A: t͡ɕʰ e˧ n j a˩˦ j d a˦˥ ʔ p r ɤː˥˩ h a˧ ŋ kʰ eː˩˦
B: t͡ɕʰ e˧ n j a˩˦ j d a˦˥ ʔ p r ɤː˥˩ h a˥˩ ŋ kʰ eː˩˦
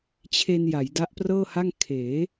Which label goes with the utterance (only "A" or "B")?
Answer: B